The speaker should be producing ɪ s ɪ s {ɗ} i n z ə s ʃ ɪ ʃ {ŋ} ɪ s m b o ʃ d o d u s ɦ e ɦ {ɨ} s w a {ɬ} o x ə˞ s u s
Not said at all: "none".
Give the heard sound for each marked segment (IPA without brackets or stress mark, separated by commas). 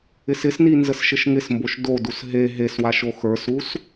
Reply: n, ŋ, e, ʃ